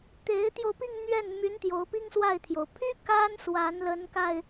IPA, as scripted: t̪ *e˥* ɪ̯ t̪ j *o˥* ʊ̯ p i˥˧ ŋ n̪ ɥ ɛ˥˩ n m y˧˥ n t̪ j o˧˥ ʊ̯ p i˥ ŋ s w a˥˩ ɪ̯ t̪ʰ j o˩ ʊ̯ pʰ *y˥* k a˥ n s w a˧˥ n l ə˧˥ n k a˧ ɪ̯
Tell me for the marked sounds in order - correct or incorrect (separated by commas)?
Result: incorrect, incorrect, correct